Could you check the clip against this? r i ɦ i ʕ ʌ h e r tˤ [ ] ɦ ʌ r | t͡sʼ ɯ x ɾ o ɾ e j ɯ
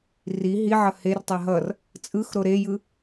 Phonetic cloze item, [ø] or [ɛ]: ɛ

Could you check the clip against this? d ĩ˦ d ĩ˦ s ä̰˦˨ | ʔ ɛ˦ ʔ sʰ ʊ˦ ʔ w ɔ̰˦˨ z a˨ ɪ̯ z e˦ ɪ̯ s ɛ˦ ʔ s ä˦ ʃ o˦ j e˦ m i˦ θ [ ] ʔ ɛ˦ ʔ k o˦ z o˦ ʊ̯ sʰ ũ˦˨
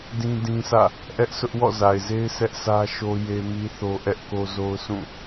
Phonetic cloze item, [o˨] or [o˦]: o˦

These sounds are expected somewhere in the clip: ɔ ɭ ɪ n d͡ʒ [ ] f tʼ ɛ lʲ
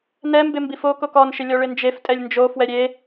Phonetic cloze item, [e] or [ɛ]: e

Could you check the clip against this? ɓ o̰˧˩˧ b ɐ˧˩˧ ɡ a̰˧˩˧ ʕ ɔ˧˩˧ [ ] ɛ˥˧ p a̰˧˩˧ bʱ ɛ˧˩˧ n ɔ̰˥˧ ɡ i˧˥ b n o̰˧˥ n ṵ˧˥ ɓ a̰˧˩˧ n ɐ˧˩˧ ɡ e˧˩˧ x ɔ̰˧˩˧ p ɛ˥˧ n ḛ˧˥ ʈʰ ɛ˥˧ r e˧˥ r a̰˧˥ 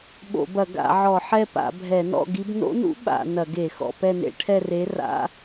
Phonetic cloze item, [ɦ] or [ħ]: ħ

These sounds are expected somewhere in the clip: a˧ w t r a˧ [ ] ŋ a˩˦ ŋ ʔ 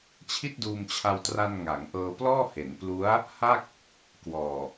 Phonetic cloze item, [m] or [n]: n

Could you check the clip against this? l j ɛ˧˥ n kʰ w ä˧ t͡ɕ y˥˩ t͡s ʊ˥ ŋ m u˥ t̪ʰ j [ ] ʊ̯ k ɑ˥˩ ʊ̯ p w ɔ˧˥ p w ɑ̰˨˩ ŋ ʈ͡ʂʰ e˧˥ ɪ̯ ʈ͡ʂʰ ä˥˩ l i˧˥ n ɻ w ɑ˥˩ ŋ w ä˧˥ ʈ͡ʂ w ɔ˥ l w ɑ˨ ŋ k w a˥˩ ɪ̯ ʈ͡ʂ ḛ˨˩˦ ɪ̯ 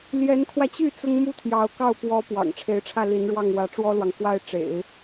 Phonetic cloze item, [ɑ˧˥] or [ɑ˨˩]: ɑ˧˥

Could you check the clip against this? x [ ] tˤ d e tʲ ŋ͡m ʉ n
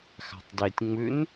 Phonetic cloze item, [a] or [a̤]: a̤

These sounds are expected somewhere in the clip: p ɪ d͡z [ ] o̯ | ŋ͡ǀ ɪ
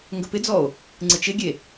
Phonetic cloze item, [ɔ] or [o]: ɔ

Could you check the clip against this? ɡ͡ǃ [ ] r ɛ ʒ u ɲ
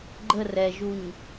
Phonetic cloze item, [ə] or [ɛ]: ə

